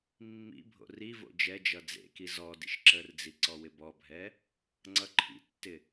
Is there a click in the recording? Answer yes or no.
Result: yes